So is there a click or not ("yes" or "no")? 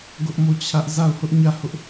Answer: no